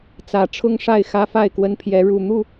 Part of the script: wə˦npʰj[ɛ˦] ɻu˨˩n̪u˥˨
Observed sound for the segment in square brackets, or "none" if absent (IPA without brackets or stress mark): ɛ˨˦